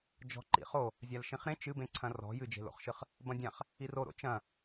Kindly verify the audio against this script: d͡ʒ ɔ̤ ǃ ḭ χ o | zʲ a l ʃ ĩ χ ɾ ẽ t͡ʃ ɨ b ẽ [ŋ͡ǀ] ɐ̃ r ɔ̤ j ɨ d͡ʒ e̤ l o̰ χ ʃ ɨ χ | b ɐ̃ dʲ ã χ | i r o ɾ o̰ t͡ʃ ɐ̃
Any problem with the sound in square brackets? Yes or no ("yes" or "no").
yes